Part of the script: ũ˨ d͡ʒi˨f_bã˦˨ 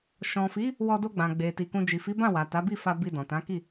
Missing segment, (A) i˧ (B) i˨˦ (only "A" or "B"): B